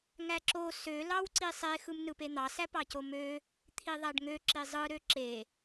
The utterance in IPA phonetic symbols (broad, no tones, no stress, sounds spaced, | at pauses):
ŋ æ ǁ o s ø l ɑ w ǀ i sˤ e x ɯ m n ɯ p e n̪ ɑ s æ p ɑ c o m ø | t̪ʰ i ðˤ æ ɖ ŋ ø ǁ i zˤ ɯ ɾ ø ǁ e